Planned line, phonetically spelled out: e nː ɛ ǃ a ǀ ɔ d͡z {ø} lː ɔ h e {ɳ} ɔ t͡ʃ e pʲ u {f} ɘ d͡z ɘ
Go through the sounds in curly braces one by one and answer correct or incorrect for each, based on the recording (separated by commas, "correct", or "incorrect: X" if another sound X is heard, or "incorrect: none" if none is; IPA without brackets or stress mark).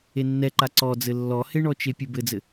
incorrect: ɘ, correct, incorrect: b